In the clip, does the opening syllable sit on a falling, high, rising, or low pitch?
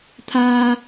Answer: low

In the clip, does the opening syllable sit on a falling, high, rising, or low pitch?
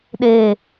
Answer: low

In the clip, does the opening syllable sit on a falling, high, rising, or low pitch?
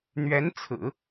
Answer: rising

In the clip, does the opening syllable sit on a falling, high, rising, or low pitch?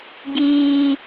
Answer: high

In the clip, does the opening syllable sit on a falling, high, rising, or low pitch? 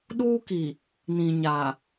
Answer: high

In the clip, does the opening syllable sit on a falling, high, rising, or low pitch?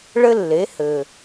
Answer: high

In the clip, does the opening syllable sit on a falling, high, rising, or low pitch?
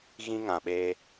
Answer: high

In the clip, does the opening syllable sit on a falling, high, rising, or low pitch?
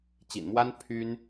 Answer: low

